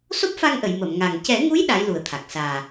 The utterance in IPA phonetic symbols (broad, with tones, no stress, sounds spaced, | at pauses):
s o˦˥ p̚ f a˧ ŋ ʔ ə˨˩˨ j m ə˨˩˨ m ŋ a˨˩ ŋ c ɛ˨˩˦ ŋ u˧˥ j ɗ a˧˥ j l u˨˩ ə̯ t̪ʰ a˨˩ k̚ s aː˨˩